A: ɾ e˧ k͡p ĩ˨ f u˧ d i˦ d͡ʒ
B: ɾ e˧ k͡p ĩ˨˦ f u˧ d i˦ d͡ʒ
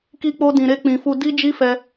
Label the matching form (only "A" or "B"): A